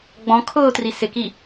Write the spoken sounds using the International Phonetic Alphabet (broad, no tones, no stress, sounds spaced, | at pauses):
ɡ͡b ɔ̃ kʰ ʊː t r i s ɪ k i